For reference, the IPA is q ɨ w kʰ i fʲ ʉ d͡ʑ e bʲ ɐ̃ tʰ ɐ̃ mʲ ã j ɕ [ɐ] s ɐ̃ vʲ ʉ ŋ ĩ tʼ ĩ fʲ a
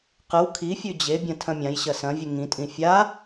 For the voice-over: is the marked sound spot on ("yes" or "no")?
yes